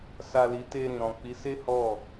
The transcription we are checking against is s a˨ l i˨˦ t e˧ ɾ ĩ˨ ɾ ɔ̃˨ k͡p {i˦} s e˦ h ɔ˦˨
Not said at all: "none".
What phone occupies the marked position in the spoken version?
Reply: i˨˦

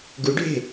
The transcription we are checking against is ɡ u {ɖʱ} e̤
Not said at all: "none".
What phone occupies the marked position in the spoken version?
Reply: ɖʱ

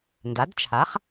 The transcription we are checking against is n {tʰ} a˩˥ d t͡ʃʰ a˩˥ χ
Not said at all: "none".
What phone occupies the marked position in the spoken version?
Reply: d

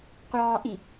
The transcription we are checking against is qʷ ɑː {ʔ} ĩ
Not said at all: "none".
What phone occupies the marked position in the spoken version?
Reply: ʔ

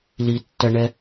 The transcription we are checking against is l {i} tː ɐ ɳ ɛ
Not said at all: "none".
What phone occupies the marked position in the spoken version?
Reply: i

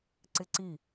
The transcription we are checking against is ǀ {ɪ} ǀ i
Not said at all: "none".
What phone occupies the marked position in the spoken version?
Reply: ɪ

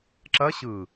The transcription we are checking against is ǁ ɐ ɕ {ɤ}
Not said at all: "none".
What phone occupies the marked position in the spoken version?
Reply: ɯ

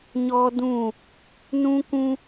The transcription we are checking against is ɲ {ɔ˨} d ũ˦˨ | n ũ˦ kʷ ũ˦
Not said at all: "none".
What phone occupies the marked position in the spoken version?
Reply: ɔ˦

